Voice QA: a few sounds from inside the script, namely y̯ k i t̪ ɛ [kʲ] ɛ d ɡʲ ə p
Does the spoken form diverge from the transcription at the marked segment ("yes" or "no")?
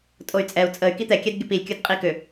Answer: no